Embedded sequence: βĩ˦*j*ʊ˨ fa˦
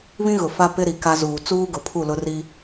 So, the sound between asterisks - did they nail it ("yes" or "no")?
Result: no